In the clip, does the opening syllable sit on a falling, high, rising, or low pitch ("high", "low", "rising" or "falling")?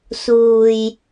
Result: low